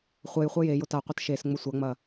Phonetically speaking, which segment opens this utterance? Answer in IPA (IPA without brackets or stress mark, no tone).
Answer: χʷ